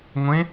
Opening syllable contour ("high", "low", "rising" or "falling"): rising